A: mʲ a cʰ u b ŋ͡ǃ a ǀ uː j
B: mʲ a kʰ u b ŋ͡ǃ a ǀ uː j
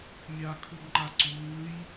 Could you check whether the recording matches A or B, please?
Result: B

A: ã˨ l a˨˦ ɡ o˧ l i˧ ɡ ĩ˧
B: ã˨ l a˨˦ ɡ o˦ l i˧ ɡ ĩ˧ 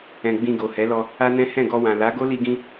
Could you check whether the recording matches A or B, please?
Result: B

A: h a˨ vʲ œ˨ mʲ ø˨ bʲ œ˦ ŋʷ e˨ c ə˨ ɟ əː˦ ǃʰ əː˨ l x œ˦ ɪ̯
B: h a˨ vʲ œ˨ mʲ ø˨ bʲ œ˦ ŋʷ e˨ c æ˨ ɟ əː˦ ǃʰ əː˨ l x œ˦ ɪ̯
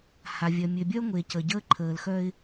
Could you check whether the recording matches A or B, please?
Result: A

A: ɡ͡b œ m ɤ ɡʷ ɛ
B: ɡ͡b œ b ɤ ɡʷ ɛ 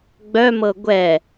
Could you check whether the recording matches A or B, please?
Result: A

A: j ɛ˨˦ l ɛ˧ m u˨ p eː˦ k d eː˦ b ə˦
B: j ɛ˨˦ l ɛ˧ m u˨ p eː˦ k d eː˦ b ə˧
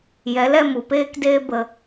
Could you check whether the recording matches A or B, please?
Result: B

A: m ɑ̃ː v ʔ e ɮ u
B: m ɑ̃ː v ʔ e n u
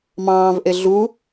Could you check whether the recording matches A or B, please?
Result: A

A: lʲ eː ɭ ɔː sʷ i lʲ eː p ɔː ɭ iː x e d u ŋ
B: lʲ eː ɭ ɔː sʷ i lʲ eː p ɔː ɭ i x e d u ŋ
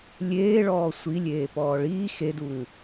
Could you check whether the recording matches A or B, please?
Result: A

